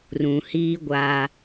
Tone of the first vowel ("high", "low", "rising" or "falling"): low